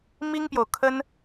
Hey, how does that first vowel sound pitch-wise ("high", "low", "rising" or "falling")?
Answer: high